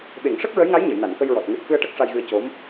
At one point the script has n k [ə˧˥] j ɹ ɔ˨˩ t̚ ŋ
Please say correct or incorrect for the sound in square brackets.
incorrect: ə˧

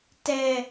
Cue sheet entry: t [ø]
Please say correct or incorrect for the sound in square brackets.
incorrect: ɛ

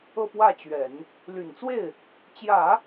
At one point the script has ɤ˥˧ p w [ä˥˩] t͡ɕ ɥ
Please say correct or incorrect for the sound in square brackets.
correct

